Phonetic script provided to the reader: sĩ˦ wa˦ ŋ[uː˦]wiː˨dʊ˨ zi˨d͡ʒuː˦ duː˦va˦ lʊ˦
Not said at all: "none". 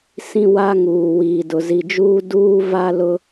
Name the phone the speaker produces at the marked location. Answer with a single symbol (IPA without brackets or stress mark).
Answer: uː˨